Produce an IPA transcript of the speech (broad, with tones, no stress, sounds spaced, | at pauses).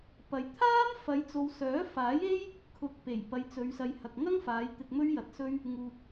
p ɐ˨ j t̪ʰ aː˥ m f ɐ˨˧ j t͡s o˨ w s œː˨˥ f aː˨˥ j e˥ j | kʰ ʊ˨˥ k̚ p e˨˩ j p ɐ˨˧ j t͡s ɵ˨˧ ɥ s ɐ˨ j h ɐ˨ k̚ ŋ ɐ˥ ŋ f aː˨˧ j t̪ ɪ˧ k̚ m ɵ˥ ɥ j ɐ˨˥ t̚ s ɵ˥ ɥ | ŋ uː˨ k̚